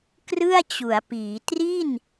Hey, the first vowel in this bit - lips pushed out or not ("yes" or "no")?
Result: no